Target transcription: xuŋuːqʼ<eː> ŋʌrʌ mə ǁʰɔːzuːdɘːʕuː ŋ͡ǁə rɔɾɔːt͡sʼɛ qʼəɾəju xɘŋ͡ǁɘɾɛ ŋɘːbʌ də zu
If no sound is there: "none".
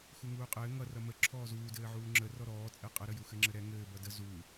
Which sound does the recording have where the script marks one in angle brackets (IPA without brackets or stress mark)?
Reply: ɘː